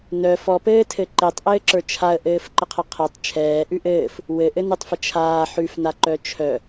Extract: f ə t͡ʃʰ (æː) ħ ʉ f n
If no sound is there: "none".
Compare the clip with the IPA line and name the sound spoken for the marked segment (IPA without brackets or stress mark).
aː